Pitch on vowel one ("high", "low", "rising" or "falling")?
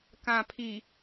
low